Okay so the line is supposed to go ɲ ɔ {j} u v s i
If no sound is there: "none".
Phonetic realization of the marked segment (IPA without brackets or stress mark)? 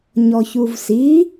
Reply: ç